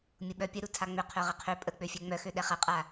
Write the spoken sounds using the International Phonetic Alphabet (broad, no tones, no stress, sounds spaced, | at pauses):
mʲ ʊ ɓ œ pʲ ə ɾ u tʰ a ŋ͡m ʏ qʰ œ ʁ ɪ qʰ ø pʼ ə k͡p ø fʲ ɛ ŋ͡m œ x ø ɗ ɛ χ ɐ qʼ a